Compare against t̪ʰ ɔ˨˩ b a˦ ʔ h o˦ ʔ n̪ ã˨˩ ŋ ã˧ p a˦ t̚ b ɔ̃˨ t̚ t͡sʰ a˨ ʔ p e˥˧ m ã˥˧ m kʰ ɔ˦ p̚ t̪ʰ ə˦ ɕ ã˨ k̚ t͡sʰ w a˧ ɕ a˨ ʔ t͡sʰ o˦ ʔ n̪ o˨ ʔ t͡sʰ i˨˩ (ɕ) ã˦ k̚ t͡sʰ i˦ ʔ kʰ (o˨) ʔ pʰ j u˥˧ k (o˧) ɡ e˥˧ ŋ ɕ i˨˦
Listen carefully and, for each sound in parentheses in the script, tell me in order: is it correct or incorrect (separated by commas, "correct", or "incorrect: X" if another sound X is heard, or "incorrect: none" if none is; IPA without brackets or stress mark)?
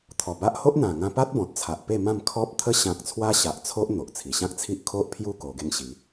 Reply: correct, incorrect: o˦, correct